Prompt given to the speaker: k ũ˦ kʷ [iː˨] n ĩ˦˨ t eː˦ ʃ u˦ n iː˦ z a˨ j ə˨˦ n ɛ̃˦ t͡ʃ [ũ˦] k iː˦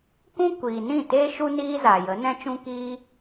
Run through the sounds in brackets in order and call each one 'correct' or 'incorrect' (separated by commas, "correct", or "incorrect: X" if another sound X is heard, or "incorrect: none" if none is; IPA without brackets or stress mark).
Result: correct, correct